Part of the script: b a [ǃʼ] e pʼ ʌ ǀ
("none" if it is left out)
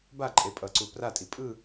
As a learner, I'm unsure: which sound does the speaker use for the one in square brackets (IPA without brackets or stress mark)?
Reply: ǃʼ